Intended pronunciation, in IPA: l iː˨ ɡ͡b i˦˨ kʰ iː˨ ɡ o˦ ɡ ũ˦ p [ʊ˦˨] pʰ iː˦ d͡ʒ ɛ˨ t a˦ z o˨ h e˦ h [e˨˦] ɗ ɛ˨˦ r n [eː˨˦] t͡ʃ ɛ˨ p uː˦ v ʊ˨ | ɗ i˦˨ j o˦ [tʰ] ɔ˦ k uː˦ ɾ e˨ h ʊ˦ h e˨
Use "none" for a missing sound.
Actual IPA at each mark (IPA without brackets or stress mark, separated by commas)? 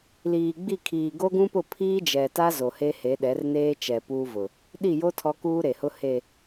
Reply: ʊ˦˨, e˨˦, eː˦, tʰ